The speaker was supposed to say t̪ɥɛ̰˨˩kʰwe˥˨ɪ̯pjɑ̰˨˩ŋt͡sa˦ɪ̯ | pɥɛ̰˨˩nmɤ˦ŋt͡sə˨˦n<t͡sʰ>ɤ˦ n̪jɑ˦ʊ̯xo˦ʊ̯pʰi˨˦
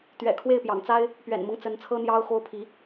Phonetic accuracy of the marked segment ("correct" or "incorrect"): correct